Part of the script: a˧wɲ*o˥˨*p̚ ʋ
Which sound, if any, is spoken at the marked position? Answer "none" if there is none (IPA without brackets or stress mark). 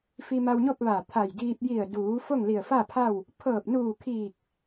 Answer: o˥˨